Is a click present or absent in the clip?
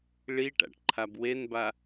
present